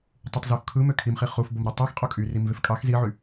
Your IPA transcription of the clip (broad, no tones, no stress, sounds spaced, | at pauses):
tˤ u tˤ z u x kʰ ɯ m ø kʰ i m χ i χ u f b o m ɾ u tˤ i x qʼ o kʼ y r i m v e f kʼ ɑ x z i ʕ y